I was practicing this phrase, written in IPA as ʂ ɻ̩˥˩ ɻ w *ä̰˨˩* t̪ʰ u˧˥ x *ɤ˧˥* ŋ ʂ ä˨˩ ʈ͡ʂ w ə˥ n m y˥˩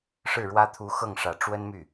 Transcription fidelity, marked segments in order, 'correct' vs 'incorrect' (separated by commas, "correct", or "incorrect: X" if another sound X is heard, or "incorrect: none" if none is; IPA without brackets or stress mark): incorrect: ä˥, incorrect: ɤ˥˩